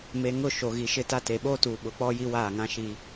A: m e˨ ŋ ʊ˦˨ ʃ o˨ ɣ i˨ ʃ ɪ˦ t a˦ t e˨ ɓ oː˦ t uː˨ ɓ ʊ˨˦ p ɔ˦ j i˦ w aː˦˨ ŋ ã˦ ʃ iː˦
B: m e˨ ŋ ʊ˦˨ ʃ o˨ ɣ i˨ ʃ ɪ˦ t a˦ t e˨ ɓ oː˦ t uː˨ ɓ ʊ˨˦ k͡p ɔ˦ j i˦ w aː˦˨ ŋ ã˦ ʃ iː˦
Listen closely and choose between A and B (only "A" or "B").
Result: B